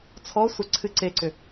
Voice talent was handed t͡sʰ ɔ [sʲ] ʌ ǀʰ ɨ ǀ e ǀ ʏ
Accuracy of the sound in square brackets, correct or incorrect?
incorrect